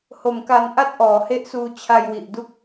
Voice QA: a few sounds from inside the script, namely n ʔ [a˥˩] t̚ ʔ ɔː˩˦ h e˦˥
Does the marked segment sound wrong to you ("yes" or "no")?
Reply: no